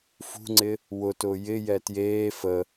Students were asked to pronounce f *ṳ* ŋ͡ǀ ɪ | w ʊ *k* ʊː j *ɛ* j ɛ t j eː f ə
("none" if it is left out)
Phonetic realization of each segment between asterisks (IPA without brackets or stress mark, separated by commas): ṳ, t, ɪ